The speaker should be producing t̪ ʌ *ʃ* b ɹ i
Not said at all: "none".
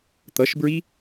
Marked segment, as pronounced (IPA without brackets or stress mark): ʃ